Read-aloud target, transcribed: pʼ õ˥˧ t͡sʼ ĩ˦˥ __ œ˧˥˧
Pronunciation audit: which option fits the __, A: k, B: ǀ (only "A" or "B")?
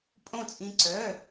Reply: B